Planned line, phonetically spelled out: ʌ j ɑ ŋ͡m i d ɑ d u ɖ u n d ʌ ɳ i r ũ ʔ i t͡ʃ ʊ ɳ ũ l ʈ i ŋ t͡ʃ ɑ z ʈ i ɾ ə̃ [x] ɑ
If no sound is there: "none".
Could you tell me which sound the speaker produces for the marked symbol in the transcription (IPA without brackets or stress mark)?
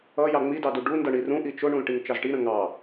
ŋ